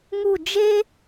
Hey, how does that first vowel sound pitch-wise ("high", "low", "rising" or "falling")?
falling